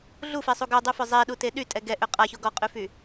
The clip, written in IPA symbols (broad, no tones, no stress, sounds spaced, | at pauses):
ɮ u f e sˤ u ɡ œ dˤ y f œ zˤ e ɗ u t e ɗ y tʼ ɛ ɡ ɛ ʔ ø qʼ a ç o ɡ ɔ qʼ y f y